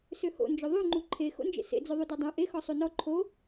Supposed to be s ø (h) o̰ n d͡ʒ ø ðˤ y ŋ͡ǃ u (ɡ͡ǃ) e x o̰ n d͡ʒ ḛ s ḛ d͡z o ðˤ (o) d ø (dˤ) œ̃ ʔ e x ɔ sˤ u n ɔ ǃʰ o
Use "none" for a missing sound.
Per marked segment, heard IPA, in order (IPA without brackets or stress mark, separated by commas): h, ǃʰ, u, dˤ